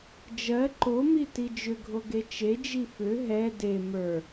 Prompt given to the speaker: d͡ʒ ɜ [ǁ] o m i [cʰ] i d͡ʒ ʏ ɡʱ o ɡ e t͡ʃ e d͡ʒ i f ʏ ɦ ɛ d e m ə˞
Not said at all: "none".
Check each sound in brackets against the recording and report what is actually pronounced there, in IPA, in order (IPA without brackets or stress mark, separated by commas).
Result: ǃ, t